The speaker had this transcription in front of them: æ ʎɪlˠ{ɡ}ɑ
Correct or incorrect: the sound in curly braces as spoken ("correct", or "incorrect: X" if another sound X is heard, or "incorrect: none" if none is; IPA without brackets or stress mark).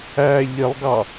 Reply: correct